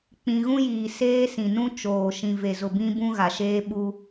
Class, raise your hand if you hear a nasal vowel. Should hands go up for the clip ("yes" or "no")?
yes